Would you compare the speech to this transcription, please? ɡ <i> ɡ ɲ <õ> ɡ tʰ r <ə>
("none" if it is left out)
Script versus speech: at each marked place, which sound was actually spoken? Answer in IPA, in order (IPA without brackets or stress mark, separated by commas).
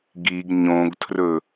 i, õ, ɵ